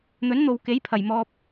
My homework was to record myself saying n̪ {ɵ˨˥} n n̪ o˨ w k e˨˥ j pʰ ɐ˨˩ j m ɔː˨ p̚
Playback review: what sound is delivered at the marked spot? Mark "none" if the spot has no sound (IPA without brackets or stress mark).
ɵ˨˥